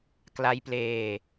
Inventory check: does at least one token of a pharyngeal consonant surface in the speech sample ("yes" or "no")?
no